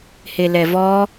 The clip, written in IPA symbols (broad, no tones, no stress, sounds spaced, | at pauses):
h e l ɛ v ɔ